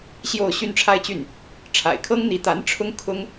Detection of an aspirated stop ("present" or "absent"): present